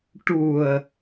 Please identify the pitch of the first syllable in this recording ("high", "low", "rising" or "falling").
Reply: low